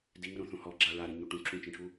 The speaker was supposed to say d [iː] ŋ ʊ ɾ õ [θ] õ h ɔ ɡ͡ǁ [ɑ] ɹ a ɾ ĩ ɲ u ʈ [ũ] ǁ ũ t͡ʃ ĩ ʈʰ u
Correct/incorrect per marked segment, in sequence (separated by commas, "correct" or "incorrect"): incorrect, correct, incorrect, correct